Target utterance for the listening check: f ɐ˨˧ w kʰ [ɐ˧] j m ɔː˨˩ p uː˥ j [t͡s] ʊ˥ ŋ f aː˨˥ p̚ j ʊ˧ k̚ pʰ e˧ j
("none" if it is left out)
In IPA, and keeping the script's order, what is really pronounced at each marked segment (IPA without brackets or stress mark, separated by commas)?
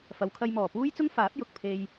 ɐ˧, t͡s